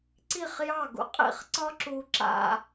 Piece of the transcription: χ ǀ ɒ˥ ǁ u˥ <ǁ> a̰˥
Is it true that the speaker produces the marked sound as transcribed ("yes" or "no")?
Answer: yes